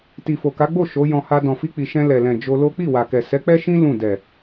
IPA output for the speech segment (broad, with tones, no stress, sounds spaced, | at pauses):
t i˨ f o˨ k a˨˦ ɡ͡b o˦˨ ʃ o˨˦ j ɔ̃˧ h a˧ d ɔ̃˨ f i˧ k͡p i˨ ʃ ɛ̃˧ l ɛ˨ l ɛ̃˨ d͡ʒ o˧ l o˦ k͡p i˦˨ w a˨ k ɛ˨ s ɛ˨˦ k͡p ɛ˦ ʃ ĩ˦ l ũ˦˨ d ɛ˨